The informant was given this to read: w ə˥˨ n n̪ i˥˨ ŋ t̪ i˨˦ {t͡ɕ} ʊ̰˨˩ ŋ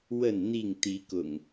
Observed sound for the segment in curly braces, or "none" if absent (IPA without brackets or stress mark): k